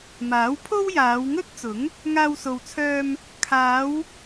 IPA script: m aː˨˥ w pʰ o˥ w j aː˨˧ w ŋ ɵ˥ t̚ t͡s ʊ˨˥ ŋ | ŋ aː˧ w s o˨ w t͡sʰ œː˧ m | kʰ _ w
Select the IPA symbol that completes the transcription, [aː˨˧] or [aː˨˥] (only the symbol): aː˨˧